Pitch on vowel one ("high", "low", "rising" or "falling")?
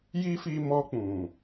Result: high